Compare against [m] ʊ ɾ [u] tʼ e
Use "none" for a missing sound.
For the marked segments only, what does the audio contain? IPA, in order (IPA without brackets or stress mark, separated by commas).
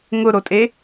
ŋ, o